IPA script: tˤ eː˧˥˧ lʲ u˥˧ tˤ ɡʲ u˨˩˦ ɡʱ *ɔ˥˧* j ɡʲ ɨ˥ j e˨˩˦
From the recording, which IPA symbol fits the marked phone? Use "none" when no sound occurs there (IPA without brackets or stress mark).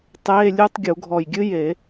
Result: ɔ˧˩